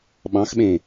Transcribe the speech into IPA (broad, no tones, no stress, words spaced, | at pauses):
ɓɑ̃xɓẽ